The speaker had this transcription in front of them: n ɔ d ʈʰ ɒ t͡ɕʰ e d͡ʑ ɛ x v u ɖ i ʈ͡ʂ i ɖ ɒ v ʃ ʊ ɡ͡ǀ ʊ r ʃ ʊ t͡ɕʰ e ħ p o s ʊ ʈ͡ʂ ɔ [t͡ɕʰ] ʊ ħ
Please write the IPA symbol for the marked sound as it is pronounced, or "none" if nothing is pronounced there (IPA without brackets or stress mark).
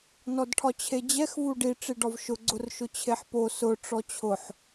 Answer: t͡ɕʰ